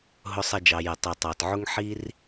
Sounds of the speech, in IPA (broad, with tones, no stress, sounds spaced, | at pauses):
ɦ ʊ˨ sˤ ɛ˨ d͡ʒ ɑ˩ j ɛ˩ tˤ i˩ tˤ ɑ˩ t ʕ ʊ˦ ŋ ħ i˦ r